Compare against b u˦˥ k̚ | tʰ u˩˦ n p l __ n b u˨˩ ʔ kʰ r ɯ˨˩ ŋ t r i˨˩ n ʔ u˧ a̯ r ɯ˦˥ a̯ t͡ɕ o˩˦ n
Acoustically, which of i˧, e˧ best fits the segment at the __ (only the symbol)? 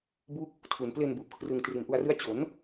e˧